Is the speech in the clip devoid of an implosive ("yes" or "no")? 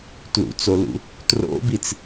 yes